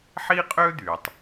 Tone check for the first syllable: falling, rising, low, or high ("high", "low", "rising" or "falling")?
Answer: high